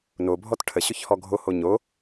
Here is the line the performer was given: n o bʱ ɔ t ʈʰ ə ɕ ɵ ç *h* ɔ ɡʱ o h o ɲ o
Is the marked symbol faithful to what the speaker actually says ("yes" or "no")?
yes